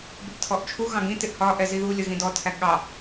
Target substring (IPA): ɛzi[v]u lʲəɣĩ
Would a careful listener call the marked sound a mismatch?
yes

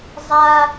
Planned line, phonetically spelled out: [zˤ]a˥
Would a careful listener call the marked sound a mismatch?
no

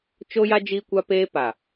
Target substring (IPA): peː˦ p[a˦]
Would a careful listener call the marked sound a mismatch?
yes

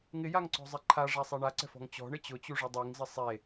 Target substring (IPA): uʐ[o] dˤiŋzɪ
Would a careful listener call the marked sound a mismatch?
yes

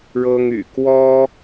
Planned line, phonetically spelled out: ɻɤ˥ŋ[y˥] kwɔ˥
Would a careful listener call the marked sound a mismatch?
yes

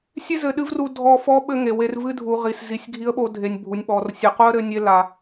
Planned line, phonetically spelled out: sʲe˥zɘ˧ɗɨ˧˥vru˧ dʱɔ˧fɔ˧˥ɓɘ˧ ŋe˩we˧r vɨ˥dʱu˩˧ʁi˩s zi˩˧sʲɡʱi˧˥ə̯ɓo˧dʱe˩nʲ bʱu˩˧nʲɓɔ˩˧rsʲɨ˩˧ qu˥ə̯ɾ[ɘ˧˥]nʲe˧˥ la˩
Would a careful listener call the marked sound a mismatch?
no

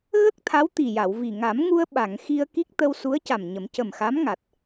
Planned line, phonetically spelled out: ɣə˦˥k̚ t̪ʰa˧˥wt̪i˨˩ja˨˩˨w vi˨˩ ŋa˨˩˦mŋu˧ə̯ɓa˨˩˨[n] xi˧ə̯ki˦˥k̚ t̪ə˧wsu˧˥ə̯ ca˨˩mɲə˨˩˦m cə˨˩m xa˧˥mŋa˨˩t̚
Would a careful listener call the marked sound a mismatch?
yes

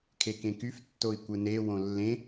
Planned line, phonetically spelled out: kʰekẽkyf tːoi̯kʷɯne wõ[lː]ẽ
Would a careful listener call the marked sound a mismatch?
no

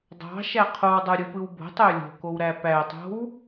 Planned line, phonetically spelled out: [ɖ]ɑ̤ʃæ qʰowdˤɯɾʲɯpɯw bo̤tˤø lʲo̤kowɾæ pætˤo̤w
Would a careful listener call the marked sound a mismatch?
yes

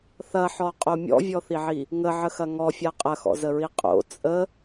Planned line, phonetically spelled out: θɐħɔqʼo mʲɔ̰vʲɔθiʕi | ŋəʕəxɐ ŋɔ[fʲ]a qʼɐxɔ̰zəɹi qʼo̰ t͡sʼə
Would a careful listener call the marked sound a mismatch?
no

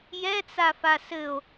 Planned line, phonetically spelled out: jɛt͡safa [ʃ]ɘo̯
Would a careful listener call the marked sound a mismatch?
yes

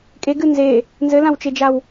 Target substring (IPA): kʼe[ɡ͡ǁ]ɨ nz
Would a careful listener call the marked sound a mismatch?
yes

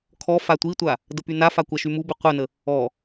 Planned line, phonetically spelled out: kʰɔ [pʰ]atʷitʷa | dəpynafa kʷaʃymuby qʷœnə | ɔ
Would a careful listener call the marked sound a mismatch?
yes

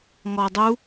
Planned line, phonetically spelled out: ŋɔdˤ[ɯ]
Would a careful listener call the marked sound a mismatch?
yes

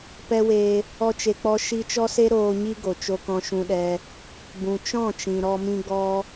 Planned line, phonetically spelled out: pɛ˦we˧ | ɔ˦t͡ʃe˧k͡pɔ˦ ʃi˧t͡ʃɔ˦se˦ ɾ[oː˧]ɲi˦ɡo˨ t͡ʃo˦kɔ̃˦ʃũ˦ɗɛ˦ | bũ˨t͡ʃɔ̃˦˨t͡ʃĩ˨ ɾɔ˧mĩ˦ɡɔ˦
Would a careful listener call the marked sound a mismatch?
no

